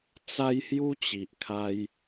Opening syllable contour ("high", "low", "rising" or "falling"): high